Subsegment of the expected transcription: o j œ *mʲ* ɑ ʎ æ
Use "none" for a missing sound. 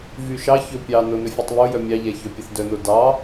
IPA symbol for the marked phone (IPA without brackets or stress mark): mʲ